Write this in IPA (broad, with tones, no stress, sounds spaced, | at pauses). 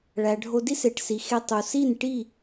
ɭ æ˨ ɖʱ o˧ d i˦ s e˨ ʈ s i˨ x e˧ tˤ u˨ s i˦˨ n ʈ i˦˨